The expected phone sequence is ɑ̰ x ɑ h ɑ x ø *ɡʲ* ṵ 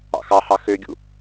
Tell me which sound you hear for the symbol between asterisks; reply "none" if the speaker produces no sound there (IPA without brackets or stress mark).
ɡʲ